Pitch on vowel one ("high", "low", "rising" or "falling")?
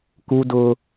high